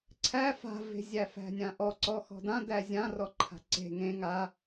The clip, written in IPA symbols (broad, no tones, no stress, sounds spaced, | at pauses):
ǀʰ æ f a̤ v e̤ zʲ æ f æ̤ nʲ ã ʔ ɔ ǀ ɔ x ɔ̤ d ã d æ zʲ ã r ɔ ǃʰ a̤ ǀ e̤ ŋ ẽ ŋ a